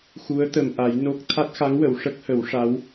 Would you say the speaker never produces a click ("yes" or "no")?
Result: yes